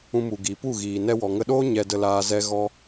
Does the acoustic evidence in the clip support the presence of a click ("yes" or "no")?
no